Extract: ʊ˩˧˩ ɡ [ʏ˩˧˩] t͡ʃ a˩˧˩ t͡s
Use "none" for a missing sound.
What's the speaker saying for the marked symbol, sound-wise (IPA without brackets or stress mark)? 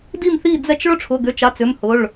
ʏ˩˧˩